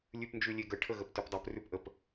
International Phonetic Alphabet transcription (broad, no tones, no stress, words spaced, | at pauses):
lʲʉpnd͡ʒʉlʲeɡə ʈʰəɣəptʉpdˤəp rʉpʔəp